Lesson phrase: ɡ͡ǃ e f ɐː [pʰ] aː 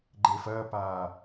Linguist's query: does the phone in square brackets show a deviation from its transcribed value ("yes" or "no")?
yes